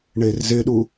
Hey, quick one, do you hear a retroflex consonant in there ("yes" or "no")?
yes